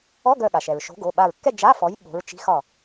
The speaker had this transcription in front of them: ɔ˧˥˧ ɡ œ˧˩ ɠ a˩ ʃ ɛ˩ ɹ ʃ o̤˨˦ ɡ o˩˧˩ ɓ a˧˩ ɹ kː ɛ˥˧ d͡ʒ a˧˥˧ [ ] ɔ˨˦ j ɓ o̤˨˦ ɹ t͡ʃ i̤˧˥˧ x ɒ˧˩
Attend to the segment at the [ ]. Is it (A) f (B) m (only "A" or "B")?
A